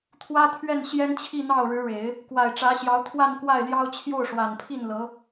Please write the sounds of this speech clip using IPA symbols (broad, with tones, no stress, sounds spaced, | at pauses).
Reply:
t̪ʰ w ä˥ t̪ʰ ɥ ɛ˥˩ n ɕ j ɛ˥ n t͡ɕʰ i˥˧ n̪ ɑ˥˩ ʊ̯ ɻ ɻ̩˧˥ ɻ e˨˩˦ ɪ̯ | k w a˨˩ ɪ̯ ʈ͡ʂ ä˧˥ ɕ j ɑ˧˥ ʊ̯ t̪ʰ w a˥˧ n k w a˥˩ ɪ̯ l j ɑ˥ ʊ̯ t͡ɕʰ j o˥˩ ʊ̯ ʂ w a˨˩ n pʰ i˥˩ n l ɤ˧˥